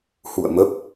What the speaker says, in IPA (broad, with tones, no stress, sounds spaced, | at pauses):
h ṵ˧˨ ə̯ m ə˦˥ p̚